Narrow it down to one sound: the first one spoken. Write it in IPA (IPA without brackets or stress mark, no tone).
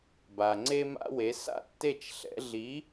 b